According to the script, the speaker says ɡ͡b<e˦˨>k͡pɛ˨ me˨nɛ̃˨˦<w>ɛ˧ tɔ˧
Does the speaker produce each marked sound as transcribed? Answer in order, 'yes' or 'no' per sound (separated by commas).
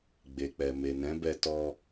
no, no